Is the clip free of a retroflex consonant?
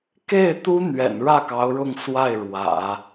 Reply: no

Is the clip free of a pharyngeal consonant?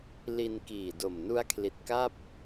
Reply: yes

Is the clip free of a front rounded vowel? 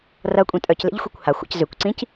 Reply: no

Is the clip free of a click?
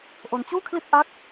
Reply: yes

